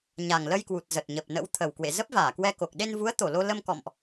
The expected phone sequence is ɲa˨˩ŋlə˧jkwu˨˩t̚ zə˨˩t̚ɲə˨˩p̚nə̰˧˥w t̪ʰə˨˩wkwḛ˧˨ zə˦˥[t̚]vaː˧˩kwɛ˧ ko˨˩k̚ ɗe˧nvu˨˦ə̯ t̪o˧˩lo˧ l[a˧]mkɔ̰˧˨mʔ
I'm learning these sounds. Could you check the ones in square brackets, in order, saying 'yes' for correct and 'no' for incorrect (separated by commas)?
no, no